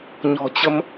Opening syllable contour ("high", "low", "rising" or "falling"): low